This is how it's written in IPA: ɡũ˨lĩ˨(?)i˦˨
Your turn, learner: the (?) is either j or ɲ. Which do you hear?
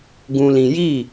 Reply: j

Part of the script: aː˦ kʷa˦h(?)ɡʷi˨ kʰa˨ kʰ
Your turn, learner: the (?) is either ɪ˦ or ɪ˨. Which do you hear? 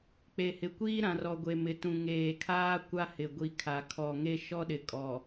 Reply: ɪ˨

